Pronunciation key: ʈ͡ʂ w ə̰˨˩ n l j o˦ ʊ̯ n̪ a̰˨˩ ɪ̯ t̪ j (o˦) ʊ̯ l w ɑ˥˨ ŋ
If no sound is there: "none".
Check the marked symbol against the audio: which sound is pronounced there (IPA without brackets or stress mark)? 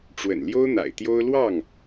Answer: o˦